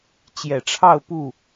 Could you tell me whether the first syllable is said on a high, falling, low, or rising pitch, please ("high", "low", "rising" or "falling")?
low